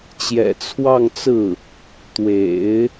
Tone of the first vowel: low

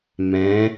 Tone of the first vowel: rising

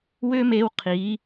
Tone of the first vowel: high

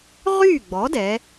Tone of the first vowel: falling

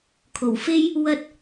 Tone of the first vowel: low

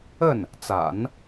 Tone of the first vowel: falling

